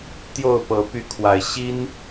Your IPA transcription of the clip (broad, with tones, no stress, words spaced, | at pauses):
t̪jo˥˨ʊ̯pɤ˨˦ py˨˦kʰwa˨˩ɪ̯ ɕi˦n